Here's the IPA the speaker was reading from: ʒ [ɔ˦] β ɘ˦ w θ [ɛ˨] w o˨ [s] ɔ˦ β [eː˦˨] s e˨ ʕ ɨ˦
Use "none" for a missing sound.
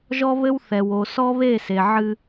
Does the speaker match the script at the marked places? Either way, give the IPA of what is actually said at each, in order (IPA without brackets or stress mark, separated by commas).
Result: ɔ˦, ɛ˨, s, e˦˨